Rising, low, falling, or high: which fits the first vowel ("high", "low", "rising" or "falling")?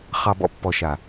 low